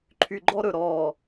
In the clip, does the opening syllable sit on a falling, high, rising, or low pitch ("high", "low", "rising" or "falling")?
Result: low